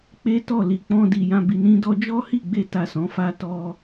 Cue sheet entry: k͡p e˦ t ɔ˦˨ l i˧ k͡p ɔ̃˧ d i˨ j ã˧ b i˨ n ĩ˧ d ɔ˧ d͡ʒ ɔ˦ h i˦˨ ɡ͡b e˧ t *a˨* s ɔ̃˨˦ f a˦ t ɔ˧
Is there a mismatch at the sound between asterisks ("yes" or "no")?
no